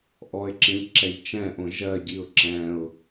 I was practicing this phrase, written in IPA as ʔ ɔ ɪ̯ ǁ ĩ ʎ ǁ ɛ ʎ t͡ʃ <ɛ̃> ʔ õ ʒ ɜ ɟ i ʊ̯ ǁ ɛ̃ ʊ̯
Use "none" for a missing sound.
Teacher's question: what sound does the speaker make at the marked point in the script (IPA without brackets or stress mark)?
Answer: ɛ̃